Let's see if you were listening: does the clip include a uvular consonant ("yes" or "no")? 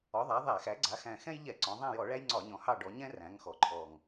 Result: no